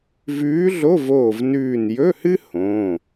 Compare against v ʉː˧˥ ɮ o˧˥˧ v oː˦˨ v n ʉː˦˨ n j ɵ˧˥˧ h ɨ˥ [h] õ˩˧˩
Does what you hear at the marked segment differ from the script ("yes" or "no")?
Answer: no